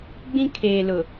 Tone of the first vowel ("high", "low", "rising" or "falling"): high